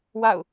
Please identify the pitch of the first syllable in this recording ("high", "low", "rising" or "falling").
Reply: falling